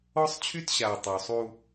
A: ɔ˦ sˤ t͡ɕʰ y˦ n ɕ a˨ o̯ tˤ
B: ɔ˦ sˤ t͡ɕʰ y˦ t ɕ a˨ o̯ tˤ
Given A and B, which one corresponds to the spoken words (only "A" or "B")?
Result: B